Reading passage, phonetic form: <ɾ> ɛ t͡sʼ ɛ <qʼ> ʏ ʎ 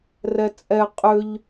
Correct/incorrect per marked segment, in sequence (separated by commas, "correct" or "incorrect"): incorrect, correct